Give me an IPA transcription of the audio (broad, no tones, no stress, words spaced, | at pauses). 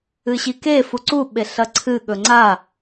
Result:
ɨɕike fuǀu ɓeɬɐǀʰɨ ɠɵŋ͡ǀa